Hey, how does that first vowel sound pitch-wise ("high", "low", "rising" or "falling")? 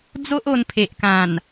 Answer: high